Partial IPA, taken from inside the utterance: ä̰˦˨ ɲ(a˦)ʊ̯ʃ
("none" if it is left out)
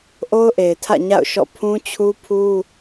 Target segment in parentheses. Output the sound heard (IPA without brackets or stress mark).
a̰˦˨